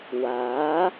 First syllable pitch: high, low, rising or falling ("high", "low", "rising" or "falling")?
rising